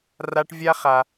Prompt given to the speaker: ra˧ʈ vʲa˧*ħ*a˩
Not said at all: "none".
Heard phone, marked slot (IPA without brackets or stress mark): χ